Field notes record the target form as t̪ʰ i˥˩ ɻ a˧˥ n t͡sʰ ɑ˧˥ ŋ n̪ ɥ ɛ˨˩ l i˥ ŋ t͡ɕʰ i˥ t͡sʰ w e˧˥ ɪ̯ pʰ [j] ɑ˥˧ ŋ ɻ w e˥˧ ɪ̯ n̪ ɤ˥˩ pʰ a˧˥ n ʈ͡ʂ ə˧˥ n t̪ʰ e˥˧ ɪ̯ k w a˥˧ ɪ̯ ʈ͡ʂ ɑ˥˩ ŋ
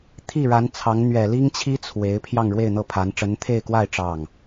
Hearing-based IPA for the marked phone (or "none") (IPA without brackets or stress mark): j